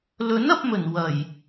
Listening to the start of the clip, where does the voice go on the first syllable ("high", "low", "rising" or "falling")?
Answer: rising